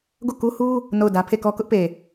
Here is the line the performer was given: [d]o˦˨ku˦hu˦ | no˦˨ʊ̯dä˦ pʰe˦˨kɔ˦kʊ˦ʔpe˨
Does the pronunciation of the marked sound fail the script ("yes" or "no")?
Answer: yes